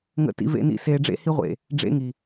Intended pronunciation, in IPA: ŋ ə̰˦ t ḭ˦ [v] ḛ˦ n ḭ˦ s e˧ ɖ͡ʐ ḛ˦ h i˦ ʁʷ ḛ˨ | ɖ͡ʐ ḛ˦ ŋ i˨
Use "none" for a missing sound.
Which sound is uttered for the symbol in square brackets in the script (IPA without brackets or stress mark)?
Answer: v